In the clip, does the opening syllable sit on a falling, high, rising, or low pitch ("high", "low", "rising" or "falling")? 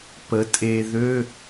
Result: rising